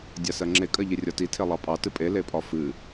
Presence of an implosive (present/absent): absent